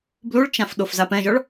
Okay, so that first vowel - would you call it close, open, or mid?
close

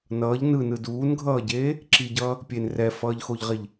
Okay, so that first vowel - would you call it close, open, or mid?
mid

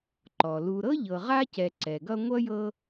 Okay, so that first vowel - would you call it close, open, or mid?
mid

